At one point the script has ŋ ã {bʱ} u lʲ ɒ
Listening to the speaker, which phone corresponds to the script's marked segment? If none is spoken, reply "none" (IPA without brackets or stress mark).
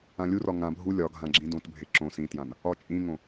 bʱ